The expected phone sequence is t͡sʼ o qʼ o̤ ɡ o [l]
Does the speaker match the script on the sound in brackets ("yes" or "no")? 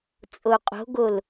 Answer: yes